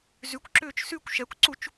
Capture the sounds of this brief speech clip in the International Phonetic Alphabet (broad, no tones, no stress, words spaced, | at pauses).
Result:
zykʷǁʏːt͡ʃ sykʷ ʃɛkʷǀut͡ʃ